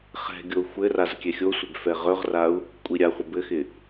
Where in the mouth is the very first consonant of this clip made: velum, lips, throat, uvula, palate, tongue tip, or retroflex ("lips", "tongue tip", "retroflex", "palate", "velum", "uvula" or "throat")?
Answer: uvula